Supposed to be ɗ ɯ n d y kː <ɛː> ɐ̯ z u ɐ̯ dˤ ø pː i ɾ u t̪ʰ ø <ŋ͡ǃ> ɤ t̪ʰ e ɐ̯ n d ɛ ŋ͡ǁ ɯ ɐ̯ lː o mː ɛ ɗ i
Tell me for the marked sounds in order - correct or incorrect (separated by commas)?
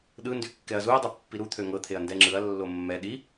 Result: incorrect, incorrect